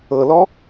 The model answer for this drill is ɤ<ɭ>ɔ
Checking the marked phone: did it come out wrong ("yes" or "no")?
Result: yes